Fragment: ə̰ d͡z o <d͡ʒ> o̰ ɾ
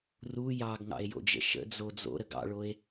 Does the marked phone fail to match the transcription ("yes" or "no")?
yes